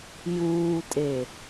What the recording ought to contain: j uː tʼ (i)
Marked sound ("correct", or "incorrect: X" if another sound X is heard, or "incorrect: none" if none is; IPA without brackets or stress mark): incorrect: e